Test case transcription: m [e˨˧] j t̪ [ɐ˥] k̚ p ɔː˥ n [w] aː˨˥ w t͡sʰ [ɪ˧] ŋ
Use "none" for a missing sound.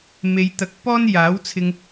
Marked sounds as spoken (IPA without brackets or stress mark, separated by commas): e˨˧, ɐ˨˥, j, ɪ˧